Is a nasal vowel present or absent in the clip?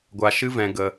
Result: present